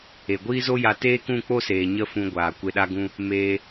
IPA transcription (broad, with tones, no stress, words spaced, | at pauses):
e˨ɡʷiː˦zo˦ja˧ teː˦kũ˦˨k͡po˦seː˨ ɲə˦fũ˧ɡʷaː˨ kʷe˨ɗa˧ɡũ˧ | meː˧